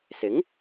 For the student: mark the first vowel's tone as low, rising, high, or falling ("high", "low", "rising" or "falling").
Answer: rising